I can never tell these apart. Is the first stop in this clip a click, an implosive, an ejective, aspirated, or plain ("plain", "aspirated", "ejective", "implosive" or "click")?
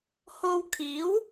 aspirated